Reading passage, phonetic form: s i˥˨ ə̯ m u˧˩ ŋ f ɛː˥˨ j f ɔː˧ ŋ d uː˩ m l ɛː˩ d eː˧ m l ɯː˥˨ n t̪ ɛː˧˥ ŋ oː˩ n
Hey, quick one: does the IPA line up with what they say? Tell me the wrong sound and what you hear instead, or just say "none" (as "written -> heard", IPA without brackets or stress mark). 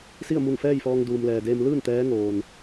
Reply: none